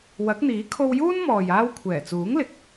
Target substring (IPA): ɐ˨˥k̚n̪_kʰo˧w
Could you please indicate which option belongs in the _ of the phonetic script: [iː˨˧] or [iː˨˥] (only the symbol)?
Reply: iː˨˥